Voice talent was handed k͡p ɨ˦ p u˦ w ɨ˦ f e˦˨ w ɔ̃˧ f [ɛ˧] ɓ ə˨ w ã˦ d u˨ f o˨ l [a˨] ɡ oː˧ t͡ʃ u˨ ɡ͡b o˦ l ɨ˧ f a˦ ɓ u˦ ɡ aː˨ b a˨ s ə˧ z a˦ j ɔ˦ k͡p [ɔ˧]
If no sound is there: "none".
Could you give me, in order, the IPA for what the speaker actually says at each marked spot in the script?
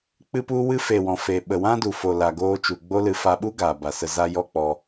e˧, a˨, ɔ˧

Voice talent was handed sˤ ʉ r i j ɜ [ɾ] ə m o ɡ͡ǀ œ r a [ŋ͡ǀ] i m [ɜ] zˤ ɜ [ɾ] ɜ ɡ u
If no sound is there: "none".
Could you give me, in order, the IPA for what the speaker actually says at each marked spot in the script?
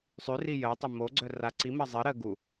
tˤ, ǀ, ɜ, ɾ

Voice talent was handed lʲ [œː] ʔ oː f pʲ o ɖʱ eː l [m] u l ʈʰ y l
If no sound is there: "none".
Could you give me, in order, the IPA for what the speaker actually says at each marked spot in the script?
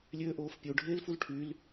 øː, f

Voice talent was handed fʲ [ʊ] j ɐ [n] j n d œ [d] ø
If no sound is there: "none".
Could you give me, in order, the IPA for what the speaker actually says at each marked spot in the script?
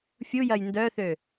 u, none, θ

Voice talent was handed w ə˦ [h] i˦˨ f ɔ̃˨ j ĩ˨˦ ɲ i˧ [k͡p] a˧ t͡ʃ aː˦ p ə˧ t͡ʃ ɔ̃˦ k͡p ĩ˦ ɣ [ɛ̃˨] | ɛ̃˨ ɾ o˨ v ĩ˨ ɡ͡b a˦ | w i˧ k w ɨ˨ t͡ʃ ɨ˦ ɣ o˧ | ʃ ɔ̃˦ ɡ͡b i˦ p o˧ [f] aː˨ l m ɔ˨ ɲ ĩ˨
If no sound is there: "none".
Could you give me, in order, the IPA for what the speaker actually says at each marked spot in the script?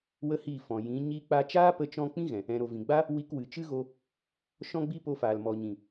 h, k͡p, ɛ̃˨, f

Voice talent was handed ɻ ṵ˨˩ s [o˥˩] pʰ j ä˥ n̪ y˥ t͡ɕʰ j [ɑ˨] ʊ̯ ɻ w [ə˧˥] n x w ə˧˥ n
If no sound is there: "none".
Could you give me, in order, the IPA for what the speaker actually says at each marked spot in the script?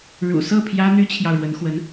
ɤ˥˩, ɑ˨, ə˧˥

